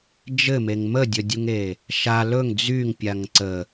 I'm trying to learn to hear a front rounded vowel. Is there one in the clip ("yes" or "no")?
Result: yes